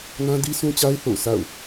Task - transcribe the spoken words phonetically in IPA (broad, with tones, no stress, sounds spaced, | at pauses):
n ã˦ d i˦ s ũ˦ t͡ɕ a˦ ɪ̯ θ o̰˦˨ ʊ̯ s a̰˦˨ ʊ̯